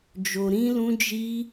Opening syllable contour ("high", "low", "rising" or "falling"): low